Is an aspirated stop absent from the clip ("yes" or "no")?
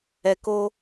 yes